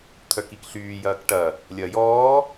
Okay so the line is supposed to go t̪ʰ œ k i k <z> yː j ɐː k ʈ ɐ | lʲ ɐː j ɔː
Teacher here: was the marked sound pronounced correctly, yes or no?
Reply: no